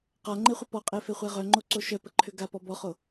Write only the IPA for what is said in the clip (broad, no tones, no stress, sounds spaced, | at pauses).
q a ŋ͡ǃ e χʷ ə p ɔ qʼ e f e χʷ ɛ ʁ œ ŋ͡ǃ o ǀ o ʃ œ p ə ǃʰ ʏ ɡ a p ɔ b ɔ χ o